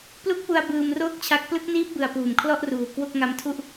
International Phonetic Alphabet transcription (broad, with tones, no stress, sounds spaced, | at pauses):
p l u˦˥ k̚ p u˧ a̯ b ɯː˧ m r oː˥˩ k̚ t͡ɕʰ a˦˥ k̚ p l ɯ˦˥ k̚ n iː˦˥ p̚ b ɯ˨˩ a̯ p uː˨˩ m kʰ l ɔ˥˩ ʔ r uː˨˩ k w o˥˩ k̚ ŋ a˦˥ m tʰ u˥˩ ʔ